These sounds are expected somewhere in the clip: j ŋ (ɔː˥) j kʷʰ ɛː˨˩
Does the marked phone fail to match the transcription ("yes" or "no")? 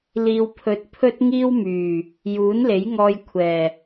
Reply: yes